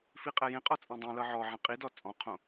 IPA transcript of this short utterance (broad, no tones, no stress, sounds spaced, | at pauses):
f i qʼ ɛ j ẽ qʼ ɔ t͡sʼ ɛ̃ dˤ ẽ l ɤ ʕ ɔ ʕ ɛ̃ qʼ i d ɔ t͡sʼ ɔ̃ qʰ õ